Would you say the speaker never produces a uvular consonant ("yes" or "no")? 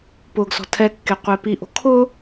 no